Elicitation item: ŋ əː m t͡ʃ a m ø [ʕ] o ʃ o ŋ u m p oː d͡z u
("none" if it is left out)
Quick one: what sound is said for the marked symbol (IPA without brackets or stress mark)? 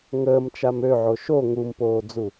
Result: ʕ